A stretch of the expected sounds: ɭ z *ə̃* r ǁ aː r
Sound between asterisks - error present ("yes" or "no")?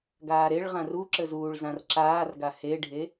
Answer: yes